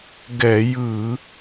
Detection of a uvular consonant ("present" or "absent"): absent